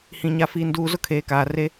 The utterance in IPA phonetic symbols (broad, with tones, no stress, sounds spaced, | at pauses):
h ĩ˨ ɲ a˨ f iː˨ n d uː˨ z ʊ˦ kʰ eː˨ k aː˨ r e˦